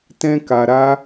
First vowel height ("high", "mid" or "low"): mid